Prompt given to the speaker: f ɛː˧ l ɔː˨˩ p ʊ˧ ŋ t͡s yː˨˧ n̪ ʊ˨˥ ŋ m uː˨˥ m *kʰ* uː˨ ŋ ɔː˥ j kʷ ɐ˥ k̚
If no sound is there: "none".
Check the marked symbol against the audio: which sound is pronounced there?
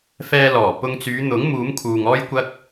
kʰ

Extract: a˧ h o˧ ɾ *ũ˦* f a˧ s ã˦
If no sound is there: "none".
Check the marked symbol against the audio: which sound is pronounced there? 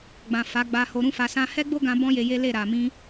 ũ˦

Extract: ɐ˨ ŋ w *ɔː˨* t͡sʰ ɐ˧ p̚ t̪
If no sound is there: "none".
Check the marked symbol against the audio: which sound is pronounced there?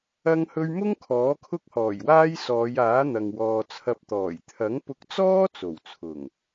ɔː˨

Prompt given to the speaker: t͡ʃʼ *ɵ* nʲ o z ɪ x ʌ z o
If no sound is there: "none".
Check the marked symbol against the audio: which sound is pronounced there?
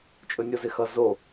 ɵ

